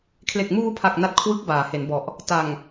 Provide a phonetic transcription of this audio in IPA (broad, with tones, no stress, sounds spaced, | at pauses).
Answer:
kʰ l e˨˩ k̚ m uː˧ pʰ a˨˩ k̚ n a˦˥ t̚ kʰ w ɯ˦˥ k̚ b aː˩˦ h e˩˦ n b ɔ˨˩ ʔ | t a˨˩ ŋ